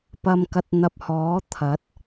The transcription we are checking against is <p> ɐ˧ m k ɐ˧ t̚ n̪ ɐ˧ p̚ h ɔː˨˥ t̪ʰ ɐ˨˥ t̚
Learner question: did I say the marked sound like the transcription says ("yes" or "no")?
yes